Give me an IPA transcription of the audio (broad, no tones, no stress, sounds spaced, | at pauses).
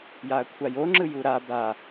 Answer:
j a ɐ̯ kʷʰ a j o ŋ͡ǁ ɯ j u ɾ a b a